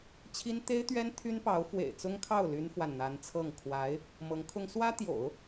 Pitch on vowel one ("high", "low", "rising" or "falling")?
high